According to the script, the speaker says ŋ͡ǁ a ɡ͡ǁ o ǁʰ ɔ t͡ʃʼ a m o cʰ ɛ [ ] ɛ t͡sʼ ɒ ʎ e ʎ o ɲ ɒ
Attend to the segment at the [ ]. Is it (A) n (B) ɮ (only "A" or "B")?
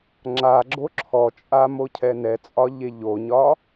A